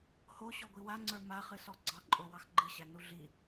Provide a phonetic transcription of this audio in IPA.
h o ɕ ɔ ɡʷ i w a ŋ͡ǀ ə˞ m a χ ɨ s ɔ ɡ͡ǀ ɑ ǃʼ o w ɑ x ɡ͡ǃ ɨ ɕ æ n u ɮ i

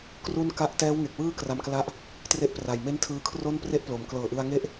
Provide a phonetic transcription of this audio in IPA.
k r u˥˩ n k a˦˥ ʔ t ɛː˦˥ w ŋ e˨˩ k̚ w ɯː˥˩ k r a˧ m k l a˦˥ ʔ | t r e˥˩ ʔ p r a˨˩ j m e˥˩ n tʰ ɯː˧ kʰ r o˥˩ n p r e˥˩ ʔ p l o˩˦ m k l ɤː˨˩ ʔ ɯ˧ a̯ ŋ e˥˩ ʔ

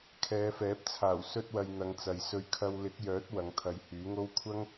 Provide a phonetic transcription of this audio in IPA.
kʰ ɛː˨˧ f ɛː˨˥ p̚ t͡sʰ aː˨˩ w s ɵ˧ t̚ w ɐ˨ j n̪ ɐ˨˧ ŋ t͡s ɐ˨ j s ɵ˧ ɥ kʰ ɐ˧ w l ɪ˨˥ k̚ j œː˨˥ t̚ w ɐ˨˧ ŋ t̪ʰ ɐ˨˧ j h yː˨˥ ŋ o˥ w kʷʰ ɐ˥ ŋ

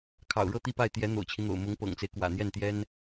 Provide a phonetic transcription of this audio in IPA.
kʰ ɑ̰˨˩ ʊ̯ ɻ ɤ˥˧ t̪ i˥˧ p a˥˩ ɪ̯ t̪ j ɛ˧˥ n̪ o̰˨˩ ʊ̯ t͡ɕʰ i˦ n̪ o̰˨˩ ʊ̯ m ʊ˧˥ ŋ p ɤ̰˨˩ ŋ t͡s e˦ ɪ̯ k w ä̰˨˩ n̪ j ɛ˥˩ n t̪ j ɛ˥ n

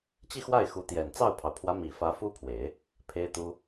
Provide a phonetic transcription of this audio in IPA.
t͡ɕ i˥˧ x w a˥˩ ɪ̯ x u˧˥ t̪ j ɛ˨˩ n t͡s ɑ˥˩ ʊ̯ pʰ ɑ˩ ʊ̯ pʰ w ä˧˥ m i˨˩ f ä˧˥ f u˥ pʰ w e˨˩˦ ɪ̯ | pʰ e˥ ɪ̯ t̪ u˥

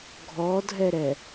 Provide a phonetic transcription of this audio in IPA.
ɡʱ ɔ dʱ ɛ ɾ ɛ

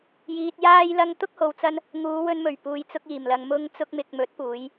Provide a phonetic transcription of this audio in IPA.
j iː˨ t̚ j aː˧ j l ɐ˧ ŋ t̪ ʊ˥ k̚ h o˨ w t͡s ɐ˧ n | ŋ uː˨˧ w ɵ˧ n m ɵ˨˩ ɥ p uː˨ j t͡s ʊ˧ k̚ iː˨˩ m l ɐ˨ ŋ m ʊ˧ ŋ t͡s ʊ˧ k̚ m ɪ˨ k̚ m ɵ˨˥ t̚ p uː˨˧ j

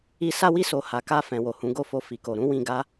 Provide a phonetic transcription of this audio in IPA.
i˧ s a˧ w i˧ s o˨ h a˨ k a˧ f ɛ̃˨ w o˨ h ũ˨˦ ɡ o˦˨ f o˧ f i˨ k o˨ ɾ ũ˨˦ w ĩ˧ ɡ a˦

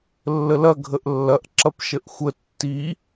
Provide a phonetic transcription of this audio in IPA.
lː ə l ɐ ɡʱ ə ʔ lː ɐ ʔ ǁ ɐ p ʃ ə ʔ xʷ ə tː i

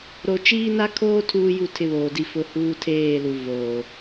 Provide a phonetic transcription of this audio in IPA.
ɾ o˨ t͡ʃ iː˦ n a˦ kʰ oː˦ tʰ uː˦ j u˦˨ tʰ ɪ˦ β oː˨ d i˦ f ʊ˦ h uː˦ tʰ eː˦˨ l u˨ v oː˨

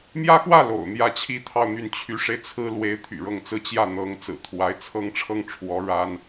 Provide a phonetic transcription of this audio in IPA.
m j ä˥ x w ä˥˩ l o̰˨˩ ʊ̯ n̪ j ä˥˩ t͡ɕʰ i˥ t̪ʰ ɑ˥˧ ʊ̯ n̪ y˥˩ n t͡ɕʰ y˧˥ ʂ e˧ ɪ̯ t͡sʰ ɹ̩˥ l w e˧˥ ɪ̯ t̪ʰ y̰˨˩ ɻ ɤ˥˧ ŋ t͡s ɹ̩˥˧ t͡ɕ j ä˥˩ n̪ ɤ˧˥ ŋ t͡s ɹ̩˨˩ t̪ʰ w a˧˥ ɪ̯ t͡sʰ ɤ˥ ŋ ʈ͡ʂʰ ɤ˥˩ ŋ ʈ͡ʂʰ w ɔ˧˥ ɻ a˥ n

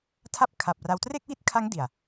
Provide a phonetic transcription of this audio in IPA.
tʰ a˥˩ p̚ kʰ a˨˩ p̚ r a˧ w t r e˥˩ k̚ w i˥˩ t̚ kʰ a˦˥ ŋ d i˨˩ a̯

